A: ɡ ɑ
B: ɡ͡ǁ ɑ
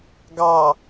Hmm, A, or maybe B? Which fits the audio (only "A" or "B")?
A